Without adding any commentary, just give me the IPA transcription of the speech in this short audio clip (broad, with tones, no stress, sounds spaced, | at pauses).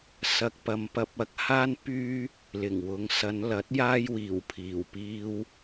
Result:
s ɐ˨ k̚ p ɐ˨ m p ɐ˧ p̚ ɐ˨˥ k̚ h aː˥ n p yː˥ | l ɪ˨˩ ŋ w ʊ˨˧ ŋ s ɐ˨˧ n l ɐ˨˥ t̚ j aː˥ j w iː˨˩ w pʰ iː˨˩ w p iː˧ w